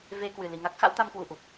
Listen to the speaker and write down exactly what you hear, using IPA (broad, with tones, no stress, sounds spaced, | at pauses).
v e˧ k w ɨ˨˩ l i˨˩ ŋ a˦˥ k̚ x a̰˧˥ w t̪ a˧ m k w u˧˩ ʔ u˨˩ p̚